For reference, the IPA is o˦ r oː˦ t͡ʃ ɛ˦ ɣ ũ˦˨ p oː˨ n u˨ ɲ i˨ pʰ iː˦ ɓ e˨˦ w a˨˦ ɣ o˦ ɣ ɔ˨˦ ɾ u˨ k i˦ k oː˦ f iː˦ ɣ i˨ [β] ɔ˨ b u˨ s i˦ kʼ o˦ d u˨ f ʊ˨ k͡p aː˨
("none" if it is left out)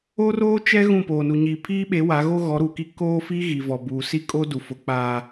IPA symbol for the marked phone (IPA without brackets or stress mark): v